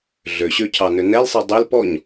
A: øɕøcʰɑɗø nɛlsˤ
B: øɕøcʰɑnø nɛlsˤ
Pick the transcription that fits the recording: B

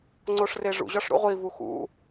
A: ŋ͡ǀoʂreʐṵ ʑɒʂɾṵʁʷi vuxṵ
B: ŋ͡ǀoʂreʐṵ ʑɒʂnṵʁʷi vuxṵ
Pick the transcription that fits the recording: A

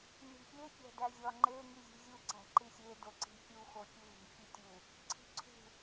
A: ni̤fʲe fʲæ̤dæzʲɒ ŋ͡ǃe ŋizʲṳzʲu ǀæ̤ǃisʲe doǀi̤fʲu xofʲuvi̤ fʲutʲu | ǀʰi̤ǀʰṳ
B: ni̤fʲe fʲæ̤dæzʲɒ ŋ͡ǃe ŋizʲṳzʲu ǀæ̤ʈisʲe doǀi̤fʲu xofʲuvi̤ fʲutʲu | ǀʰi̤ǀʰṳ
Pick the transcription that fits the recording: A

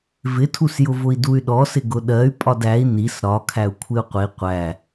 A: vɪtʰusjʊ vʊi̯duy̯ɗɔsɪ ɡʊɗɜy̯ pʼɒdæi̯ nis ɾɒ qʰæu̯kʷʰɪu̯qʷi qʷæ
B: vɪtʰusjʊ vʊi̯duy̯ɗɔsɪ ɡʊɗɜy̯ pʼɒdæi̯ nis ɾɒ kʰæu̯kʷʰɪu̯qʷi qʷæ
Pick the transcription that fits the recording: B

